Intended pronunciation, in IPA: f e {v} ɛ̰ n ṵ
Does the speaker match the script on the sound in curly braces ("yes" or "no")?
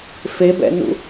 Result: no